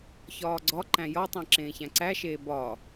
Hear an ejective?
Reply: no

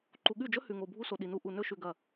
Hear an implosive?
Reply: yes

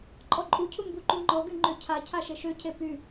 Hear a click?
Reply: yes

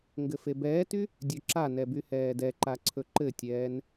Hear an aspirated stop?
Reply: yes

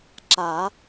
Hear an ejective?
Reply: no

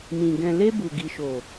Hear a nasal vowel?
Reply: yes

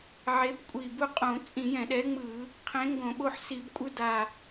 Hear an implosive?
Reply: yes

